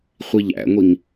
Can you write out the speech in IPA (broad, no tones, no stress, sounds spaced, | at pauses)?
χʷ i ʎ æ̰ ŋʷ i ŋ